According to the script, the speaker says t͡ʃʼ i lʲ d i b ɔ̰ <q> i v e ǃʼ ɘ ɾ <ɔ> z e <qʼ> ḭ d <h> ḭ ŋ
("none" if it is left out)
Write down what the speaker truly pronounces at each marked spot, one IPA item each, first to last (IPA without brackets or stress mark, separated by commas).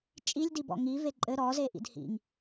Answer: ŋ, ɔ, ʔ, h